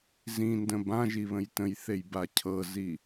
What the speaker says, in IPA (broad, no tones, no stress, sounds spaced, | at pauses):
z ĩ n d ə̃ b ã ʒ i β ə̃ j t ə̃ j θ e j b a cʰ ɤ z i